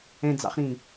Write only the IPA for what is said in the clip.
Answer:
ɛ̃ d͡z ɑ̰ χ ɾ ĩ

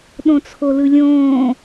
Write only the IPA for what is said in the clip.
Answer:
ɗ õ t͡sʰ o l ɯ lʲ õː

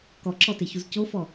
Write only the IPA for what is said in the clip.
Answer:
k ɔ ǁ ɔ t e ç u z c o f ɔ

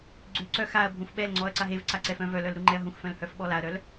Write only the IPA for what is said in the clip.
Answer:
ɡ͡ǀ ʉ ǀ œ x a ɐ̯ bʱ ũ f ɓ ɛ l ŋ͡ǀ ɔ ɐ̯ ǀ a ɦ e v ǀ a ǀ ɛ f œ̃ v œ l œ l ɾ u ŋ͡ǃ ɛ ɐ̯ ɦ ũ x f œ̃ l h œ f ɓ ɔ l a ɐ̯ ɾ œ l

